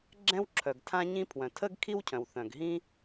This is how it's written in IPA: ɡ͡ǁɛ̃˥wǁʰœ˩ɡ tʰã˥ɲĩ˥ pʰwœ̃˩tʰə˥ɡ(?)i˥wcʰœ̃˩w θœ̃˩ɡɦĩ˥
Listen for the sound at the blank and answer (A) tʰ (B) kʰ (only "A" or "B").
B